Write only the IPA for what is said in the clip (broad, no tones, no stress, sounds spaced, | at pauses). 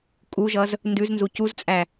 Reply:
kʼ u ʒ ʌ z | n d ʉ z n z u c u z t͡sʼ æ